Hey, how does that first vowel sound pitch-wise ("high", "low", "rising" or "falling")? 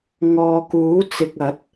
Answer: low